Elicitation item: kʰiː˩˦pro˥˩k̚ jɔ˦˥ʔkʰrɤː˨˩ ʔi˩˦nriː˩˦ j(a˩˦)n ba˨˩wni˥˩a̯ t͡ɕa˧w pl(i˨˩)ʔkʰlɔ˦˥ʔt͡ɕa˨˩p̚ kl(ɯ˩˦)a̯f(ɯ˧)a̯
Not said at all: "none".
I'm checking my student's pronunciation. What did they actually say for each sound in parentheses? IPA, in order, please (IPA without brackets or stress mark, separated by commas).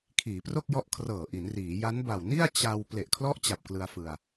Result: a˦˥, e˨˩, ɯ˧, ɯ˧